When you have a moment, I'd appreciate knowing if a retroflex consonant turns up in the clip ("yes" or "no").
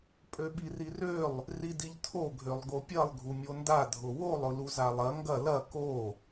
no